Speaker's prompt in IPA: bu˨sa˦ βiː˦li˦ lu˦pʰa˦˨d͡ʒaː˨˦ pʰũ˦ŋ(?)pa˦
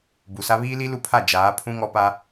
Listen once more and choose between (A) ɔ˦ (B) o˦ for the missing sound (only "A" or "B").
A